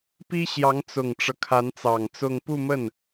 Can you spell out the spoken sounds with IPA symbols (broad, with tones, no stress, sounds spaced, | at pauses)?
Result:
p i˥ ɕ j ɑ˧˥ ŋ t͡s ʊ˨˩ ŋ ʈ͡ʂ ɤ˦ kʰ a˧˥ n t͡s ɑ˨˩ ŋ t͡s ʊ˥˧ ŋ p u˥˧ m ə˥˩ n